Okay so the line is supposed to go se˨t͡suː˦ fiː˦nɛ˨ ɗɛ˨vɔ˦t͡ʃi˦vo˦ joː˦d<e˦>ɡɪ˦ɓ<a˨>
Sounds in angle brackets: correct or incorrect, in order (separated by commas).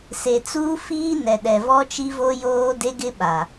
correct, correct